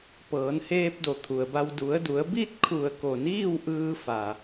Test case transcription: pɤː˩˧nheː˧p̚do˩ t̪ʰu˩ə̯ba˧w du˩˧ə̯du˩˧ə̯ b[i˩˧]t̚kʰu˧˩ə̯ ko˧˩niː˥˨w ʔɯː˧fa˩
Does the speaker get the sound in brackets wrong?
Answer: yes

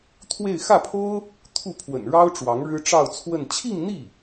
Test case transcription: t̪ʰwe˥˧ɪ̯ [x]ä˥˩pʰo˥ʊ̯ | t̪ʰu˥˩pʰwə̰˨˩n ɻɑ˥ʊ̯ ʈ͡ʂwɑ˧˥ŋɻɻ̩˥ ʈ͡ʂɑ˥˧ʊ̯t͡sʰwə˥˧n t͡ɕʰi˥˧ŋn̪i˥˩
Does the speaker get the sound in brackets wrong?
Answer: no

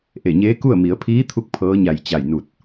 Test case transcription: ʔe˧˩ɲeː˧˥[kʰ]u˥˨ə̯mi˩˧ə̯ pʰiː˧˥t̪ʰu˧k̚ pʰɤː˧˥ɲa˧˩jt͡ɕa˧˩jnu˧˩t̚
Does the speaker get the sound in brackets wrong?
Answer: yes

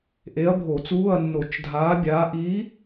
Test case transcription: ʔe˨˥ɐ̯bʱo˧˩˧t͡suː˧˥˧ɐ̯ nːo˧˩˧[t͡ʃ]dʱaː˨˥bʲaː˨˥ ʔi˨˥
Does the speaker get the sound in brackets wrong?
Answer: no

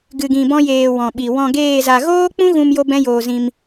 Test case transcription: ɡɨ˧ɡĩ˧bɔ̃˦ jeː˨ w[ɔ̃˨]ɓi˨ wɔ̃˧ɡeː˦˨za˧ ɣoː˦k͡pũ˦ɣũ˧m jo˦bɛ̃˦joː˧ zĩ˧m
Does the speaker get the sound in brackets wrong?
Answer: no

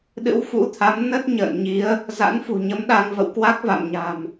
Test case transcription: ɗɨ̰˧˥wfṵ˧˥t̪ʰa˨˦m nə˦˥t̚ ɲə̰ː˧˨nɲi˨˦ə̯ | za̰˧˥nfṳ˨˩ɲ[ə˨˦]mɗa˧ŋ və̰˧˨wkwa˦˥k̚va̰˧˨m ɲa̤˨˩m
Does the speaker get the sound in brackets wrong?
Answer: no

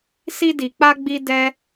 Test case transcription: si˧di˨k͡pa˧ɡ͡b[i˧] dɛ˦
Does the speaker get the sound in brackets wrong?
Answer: no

